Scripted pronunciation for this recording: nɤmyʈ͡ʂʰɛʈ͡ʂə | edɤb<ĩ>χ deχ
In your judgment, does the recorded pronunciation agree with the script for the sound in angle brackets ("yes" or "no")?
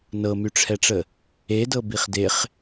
no